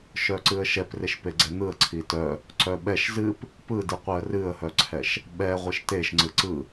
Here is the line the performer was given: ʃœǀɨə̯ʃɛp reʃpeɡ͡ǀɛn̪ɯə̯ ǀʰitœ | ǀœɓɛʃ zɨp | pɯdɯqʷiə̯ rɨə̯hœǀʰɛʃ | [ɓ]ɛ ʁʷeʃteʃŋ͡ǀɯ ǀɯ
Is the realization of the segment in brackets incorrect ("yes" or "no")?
no